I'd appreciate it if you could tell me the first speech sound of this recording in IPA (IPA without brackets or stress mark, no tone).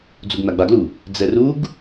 d͡z